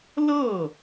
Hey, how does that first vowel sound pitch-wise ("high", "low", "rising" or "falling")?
falling